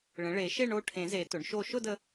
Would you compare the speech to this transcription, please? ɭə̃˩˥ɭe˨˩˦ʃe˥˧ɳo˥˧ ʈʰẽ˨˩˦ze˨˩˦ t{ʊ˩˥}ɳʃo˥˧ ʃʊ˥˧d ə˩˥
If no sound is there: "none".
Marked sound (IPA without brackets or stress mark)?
ʊ˩˥